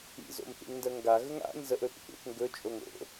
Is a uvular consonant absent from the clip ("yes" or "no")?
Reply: yes